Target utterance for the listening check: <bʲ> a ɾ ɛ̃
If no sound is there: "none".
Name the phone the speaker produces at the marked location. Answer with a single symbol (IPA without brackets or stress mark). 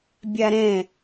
bʲ